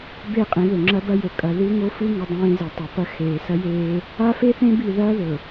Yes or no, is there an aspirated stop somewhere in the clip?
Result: no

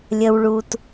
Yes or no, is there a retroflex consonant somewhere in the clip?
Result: yes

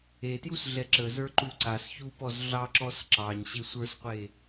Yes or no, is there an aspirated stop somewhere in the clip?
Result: no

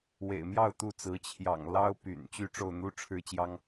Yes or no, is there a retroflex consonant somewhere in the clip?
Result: yes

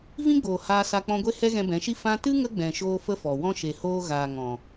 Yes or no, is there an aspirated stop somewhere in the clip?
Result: no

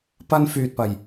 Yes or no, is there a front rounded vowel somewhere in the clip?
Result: yes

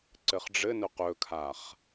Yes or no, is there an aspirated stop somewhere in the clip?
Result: yes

